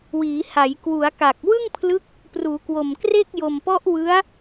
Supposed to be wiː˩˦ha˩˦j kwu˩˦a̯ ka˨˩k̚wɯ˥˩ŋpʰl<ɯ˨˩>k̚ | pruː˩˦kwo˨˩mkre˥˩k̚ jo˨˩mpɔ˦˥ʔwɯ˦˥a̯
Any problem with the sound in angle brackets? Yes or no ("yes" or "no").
yes